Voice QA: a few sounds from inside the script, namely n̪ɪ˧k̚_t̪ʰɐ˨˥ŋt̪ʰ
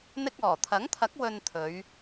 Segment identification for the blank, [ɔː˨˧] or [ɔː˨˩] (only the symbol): ɔː˨˩